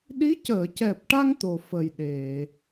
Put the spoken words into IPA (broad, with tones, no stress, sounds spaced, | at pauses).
ɗ i˧˥ c əː˨˩˨ c ɛ˨˩ p̚ ʈ a˧ ŋ t̪ o˨˩ f ə˨˩ j ɗ e˨˩˨